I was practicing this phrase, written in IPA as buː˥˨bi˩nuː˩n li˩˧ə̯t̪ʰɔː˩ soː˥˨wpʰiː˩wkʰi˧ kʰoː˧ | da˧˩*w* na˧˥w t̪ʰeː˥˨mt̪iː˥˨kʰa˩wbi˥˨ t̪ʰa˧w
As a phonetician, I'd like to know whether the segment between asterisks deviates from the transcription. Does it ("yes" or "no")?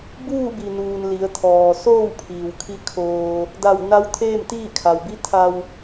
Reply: no